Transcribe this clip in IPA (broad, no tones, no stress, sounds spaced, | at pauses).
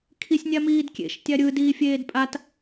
kʰ i sʲ nʲ a m iː d kʲ ḛ ʃ tʲ a ɾʲ ɯ d iː fʲ eː d pʼ a t